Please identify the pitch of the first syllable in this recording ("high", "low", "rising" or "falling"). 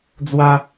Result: high